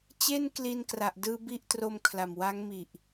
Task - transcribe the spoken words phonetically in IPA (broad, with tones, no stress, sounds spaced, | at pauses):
t͡ɕ e˥˩ n k l i˧ n k r a˨˩ ʔ d ɯː˧ b i˦˥ ʔ t r o˧ m kʰ l a˨˩ m w a˦˥ ŋ m i˨˩ ʔ